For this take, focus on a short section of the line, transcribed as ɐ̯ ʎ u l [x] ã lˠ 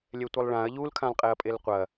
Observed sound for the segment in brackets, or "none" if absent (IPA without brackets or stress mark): kʰ